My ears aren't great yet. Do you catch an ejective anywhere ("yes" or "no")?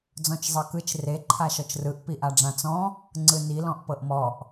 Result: no